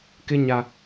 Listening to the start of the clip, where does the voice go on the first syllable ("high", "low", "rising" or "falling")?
high